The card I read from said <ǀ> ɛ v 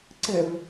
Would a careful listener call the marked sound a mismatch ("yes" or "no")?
no